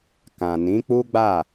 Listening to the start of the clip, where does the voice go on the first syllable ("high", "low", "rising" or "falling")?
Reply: low